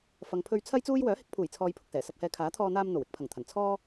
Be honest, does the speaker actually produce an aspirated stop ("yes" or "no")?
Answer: yes